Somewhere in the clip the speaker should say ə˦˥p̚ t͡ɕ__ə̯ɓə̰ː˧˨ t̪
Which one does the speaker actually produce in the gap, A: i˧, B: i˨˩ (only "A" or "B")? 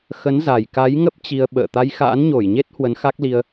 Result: A